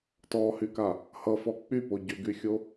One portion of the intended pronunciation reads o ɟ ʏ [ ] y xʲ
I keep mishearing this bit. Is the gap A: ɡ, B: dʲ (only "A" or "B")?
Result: A